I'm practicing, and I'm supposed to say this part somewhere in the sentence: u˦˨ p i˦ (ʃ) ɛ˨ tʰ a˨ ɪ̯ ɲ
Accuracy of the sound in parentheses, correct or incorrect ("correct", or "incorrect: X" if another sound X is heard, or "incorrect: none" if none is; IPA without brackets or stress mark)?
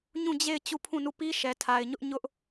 correct